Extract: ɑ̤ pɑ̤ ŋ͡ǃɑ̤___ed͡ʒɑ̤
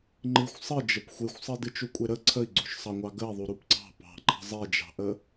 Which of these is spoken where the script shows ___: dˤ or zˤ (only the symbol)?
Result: zˤ